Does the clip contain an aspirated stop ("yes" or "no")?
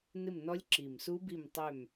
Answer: no